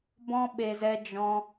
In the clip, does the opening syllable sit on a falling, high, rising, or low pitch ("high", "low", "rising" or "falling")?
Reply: high